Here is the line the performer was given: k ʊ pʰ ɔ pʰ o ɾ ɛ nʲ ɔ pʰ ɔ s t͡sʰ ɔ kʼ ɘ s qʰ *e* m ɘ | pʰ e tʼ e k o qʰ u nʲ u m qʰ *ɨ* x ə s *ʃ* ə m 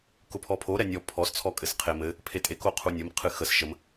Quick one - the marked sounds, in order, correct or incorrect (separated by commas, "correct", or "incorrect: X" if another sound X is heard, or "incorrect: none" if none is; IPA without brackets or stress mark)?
correct, correct, correct